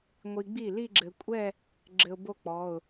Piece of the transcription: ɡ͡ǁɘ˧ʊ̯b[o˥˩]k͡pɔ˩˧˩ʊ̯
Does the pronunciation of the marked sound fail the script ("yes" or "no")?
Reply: no